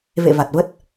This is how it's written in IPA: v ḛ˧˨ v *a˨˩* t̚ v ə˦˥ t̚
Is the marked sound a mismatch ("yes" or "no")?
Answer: no